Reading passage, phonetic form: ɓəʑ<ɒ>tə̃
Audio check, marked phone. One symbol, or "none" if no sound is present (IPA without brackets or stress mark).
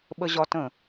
ɒ